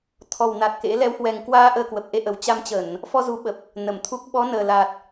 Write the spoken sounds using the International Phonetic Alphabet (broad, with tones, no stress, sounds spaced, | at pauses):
t̪ʰ ɔ˨˩ w n a˨˩ t̚ k ḛ˧˥ l ɛ˨˦ w h w ɛ˨˩ ŋ k w aː˧ ʔ əː˧ k w ə˨˩ p̚ ʔ e˧ ʔ ə˨˩ w t͡ɕ a˧ m t͡ɕ ə˧˩˨ n | f ɔ˧ z u˨˦ ɓ ə˨˩ p̚ | n ə˧˩ m t̪ʰ u˦˥ k̚ ɓ ɔ˨˦ n əː˨˩ l a˨˩ t̚